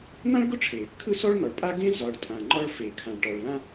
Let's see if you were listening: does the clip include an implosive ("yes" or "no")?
no